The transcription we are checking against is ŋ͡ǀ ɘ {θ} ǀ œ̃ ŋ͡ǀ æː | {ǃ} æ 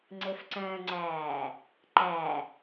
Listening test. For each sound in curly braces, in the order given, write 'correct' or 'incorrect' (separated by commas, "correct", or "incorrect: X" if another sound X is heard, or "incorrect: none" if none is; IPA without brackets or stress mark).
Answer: incorrect: f, correct